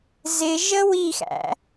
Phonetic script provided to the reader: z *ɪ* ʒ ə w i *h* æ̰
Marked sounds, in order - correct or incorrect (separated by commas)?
correct, incorrect